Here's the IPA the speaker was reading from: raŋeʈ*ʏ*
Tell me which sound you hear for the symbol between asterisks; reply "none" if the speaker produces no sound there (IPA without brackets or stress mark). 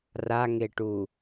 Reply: u